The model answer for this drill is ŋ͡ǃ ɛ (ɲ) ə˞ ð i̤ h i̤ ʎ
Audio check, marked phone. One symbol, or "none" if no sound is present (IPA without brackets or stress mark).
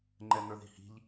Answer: n